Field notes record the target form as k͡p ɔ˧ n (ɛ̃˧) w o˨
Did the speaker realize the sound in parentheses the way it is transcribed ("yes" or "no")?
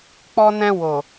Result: yes